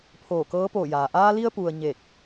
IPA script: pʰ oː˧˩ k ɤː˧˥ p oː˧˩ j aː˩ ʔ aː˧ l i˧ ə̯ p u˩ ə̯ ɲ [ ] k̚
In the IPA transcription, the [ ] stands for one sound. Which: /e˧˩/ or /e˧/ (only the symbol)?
e˧˩